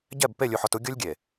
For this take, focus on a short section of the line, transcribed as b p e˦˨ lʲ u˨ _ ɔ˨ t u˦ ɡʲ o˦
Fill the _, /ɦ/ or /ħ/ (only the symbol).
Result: ħ